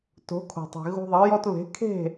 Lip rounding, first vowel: rounded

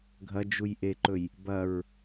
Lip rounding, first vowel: unrounded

